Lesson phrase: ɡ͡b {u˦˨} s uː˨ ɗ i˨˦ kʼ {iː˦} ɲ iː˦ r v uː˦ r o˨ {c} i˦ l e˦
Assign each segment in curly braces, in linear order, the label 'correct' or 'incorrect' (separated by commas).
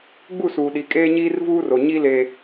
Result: correct, incorrect, incorrect